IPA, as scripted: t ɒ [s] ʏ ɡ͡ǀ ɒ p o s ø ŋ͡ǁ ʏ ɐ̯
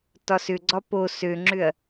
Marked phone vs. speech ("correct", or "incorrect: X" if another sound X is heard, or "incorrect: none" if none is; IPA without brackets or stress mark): correct